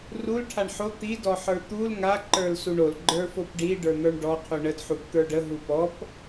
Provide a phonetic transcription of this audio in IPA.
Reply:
r u l ʈʰ a ɳ ħ o t̪ i d ɔ ħ ə˞ t̪ u l ŋ a ǃ ə˞ l s u ɳ o l ɡ͡ǃ ə˞ f o p ɖ i ɖ ə˞ n̪ ə˞ ɳ ɖ ɔ qʰ u ɳ ə d ħ u p t̪ ə˞ ɖ ə ɦ u p ɔ p

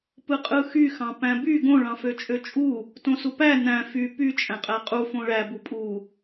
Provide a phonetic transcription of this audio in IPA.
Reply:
p ɯ qʼ ɯ x y x ɑ̃ p æ̃ b y ɡ õ ɭ ɑ̃ f ø t͡ʃʼ ø t͡ʃʼ u | t õ s u p æ n æ̃ f y p y t͡ʃʼ æ̃ qʼ æ qʼ u f õ ɭ æ b u pʼ u

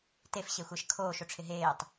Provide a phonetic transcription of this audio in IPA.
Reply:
t e f ɕ e xʷ ɛ ʃ kʰ oː ʃ o ʈ͡ʂʰ ɪ ɦ eː tˤ

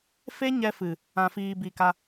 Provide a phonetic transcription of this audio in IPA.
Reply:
f e˦ ɲ ɛ˧ f ɨ˨ | ã˨ f iː˨ b i˨ k a˧

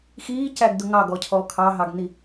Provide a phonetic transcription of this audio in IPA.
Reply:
x iː c æ ɡ d ʊ ŋ ɑ ɡ ɔ cʰ ɔ kʰ ɑ ɦ ɑ ɡ n i

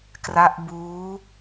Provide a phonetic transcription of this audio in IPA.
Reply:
k r a˦˥ ʔ b uː˦˥

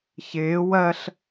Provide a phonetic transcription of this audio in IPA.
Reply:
ç ɪː w ɜ ɬ

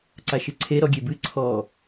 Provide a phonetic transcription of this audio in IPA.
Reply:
ǀ a ʃ ɨ ǀʰ e ɾ ɔ ɡʲ e b ɨ ǀʰ ɔ

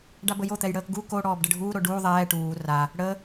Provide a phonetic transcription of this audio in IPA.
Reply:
ɖ a b ə j o t̪ ɛ j ɽ əː k ɡ u k o ɽ ɔː b ɖ ə ɖʱ uː ɾ o ɖ uː ðˤ ɛː ʈ uː r a | ɽ ə

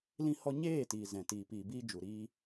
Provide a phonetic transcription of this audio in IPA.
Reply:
l ĩ˧ h ɔ˧ ɲ eː˦˨ t iː˨ z ɛ̃˨ t iː˨ p iː˨ b iː˧ d͡ʒ u˨ ɾ iː˧

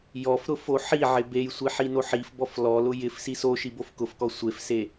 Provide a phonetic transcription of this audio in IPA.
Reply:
j ɔ f ɾ ʊ f o ħ i ʕ ɪ b e j sʷ i ħ i n o ħ i f b ɔ f l ɔ l ʊ j ɪ f s i s o ʃ i b o f k ʊ f k ɔ sʷ e f s e

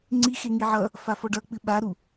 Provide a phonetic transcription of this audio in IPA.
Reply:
ŋ͡ǀ i x e ŋ i ʕ ʌ | f a f ɔ ɖ ʌ k͡p ɨ ɓ a ɾ u

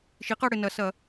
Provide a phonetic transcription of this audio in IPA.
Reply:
ʃ i˩˥ q ɐ˦˨ ɽ ɘ˨ n ɐ˩˥ s ɐ˨˩˦

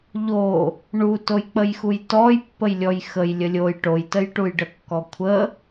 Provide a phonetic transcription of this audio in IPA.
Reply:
ʎ o | ɳ u t o j k͡p ə j x u j t ɔ j pː ə j lʲ ɔ j x ə j lʲ ə lʲ o j ʈ o j t ə j ʈ u j ɖ ə kː ɔ kʷʰ ə

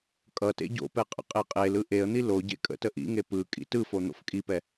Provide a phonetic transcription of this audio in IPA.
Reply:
kʼ ʌ t ḛ ɟ o̰ p ɛ qʼ ə̰ qʼ e qʼ e l ɯ ʔ e ə̯ n̪ i l o ɟ ḛ kʼ ə̰ t ə ʔ ḭ ŋ e p ɯ kʼ ḭ t ɯ f o n̪ o̰ f kʼ i p ɛ

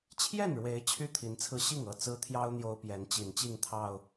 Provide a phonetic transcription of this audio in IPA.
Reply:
t͡ɕʰ j ɛ˥˨ n ɻ w e˨˦ ɪ̯ t͡ɕʰ y˥˨ t̪ʰ i˨˦ n t͡sʰ ɹ̩˧ ɕ i˥˨ ŋ ɤ˥˨ t͡s ɹ̩˦ t̪ʰ j ɑ˦ ʊ̯ n̪ j o˦ ʊ̯ p j ɛ˨˦ n t͡ɕ i˨˩ n t͡ɕ i˥˨ ŋ t̪ʰ ɑ˨˩ ʊ̯

